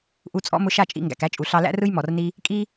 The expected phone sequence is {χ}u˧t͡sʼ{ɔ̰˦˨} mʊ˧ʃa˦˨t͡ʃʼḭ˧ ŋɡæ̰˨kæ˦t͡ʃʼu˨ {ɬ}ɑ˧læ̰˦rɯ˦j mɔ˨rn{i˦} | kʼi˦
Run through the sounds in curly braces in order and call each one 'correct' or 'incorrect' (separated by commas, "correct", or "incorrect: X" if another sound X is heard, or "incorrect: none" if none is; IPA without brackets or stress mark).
incorrect: ʔ, incorrect: ɔ̰˦, correct, correct